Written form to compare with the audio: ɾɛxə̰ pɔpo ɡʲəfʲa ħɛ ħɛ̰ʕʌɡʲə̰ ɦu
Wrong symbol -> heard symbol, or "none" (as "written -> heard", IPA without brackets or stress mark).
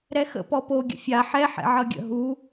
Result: ə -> ə̰